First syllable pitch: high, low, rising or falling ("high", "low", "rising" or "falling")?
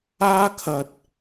high